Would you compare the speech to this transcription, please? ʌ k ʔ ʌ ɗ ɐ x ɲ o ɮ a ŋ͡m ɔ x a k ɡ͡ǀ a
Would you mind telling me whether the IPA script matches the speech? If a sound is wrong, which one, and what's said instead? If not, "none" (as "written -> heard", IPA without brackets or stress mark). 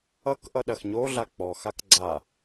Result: ŋ͡m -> k͡p